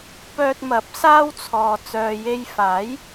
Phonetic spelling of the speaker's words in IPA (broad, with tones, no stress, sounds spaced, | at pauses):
p œː˧ t̚ m ɐ˨˥ p̚ s aː˥ w t͡sʰ ɔː˨ t͡s œː˨ j e˧ j f aː˨˥ j